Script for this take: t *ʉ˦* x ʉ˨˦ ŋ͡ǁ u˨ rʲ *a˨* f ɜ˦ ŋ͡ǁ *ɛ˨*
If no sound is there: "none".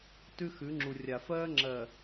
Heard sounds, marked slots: ʉ˦, a˨, ɜ˨

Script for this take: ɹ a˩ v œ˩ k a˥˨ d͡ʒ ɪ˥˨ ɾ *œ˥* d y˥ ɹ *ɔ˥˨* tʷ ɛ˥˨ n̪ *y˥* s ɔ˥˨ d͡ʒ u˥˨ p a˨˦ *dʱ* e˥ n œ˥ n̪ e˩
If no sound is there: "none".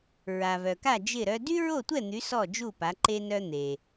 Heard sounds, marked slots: œ˥, o˥˨, y˨˦, ǃ

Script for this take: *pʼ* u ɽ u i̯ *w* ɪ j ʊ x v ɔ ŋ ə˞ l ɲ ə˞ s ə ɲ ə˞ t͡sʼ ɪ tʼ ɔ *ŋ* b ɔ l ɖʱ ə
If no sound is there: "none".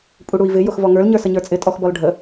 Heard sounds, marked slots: pʼ, v, x

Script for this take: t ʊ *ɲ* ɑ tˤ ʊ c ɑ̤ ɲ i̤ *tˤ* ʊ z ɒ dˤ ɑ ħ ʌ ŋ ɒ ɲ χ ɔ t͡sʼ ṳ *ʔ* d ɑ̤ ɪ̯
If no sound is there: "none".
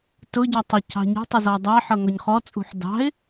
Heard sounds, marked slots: ɟ, tˤ, ħ

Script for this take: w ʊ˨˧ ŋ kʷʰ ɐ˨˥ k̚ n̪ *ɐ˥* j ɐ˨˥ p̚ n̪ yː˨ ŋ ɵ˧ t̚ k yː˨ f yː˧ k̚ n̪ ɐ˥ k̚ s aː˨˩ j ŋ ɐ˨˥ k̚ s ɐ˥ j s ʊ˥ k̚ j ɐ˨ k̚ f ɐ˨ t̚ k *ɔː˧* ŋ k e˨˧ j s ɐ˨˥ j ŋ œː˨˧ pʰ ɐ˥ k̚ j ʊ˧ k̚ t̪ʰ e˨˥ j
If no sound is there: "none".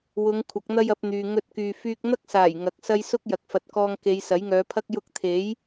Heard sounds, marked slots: ɐ˥, ɔː˧

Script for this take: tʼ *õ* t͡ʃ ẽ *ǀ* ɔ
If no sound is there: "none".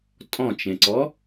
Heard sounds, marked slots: ɔ̃, ǀ

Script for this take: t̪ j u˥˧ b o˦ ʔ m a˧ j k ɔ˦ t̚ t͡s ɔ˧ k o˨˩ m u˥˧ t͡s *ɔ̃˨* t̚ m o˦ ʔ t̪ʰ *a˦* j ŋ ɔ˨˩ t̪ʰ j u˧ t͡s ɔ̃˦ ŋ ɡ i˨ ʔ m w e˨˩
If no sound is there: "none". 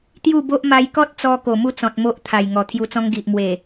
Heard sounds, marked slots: ɔ̃˨, a˨˩

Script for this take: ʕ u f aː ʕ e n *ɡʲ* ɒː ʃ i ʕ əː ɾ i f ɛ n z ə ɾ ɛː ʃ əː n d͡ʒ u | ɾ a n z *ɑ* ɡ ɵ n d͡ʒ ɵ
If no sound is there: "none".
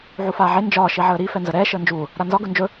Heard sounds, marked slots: d͡ʒ, ɒ

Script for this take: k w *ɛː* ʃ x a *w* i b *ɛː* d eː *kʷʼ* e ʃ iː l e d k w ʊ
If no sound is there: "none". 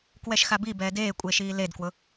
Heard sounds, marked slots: ɛ, b, ɛː, kʷʼ

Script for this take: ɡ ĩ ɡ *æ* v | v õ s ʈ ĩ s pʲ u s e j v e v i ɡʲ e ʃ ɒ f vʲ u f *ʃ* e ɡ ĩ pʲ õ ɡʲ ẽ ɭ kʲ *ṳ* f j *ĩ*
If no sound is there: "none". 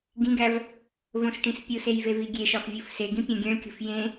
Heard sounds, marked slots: æ, s, ṳ, ẽ

